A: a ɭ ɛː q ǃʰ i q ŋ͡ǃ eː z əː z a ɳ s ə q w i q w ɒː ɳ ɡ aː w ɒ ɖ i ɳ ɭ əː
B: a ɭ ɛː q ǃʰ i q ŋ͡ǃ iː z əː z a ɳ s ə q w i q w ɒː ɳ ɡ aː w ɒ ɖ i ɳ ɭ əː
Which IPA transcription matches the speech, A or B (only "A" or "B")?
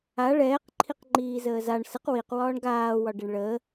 B